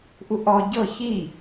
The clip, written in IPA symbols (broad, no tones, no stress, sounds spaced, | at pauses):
ʔ u ʔ ɔ ɟ ɤ ç i